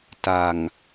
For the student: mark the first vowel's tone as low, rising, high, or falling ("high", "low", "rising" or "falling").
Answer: low